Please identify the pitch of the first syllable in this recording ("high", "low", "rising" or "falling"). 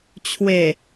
low